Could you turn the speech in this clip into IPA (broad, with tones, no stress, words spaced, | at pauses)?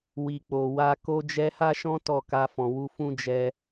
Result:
wi˨k͡po˨wa˧ ko˧d͡ʒɛ˧ha˦ʃɔ̃˦ tɔ˦˨ka˧fɔ̃˨wu˧ fũ˦d͡ʒɛ˧